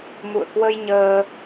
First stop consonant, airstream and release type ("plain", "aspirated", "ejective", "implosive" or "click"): plain